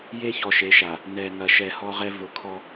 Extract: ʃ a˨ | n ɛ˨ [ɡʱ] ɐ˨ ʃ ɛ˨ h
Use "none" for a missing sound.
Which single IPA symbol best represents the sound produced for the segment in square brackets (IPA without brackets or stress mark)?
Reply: ŋ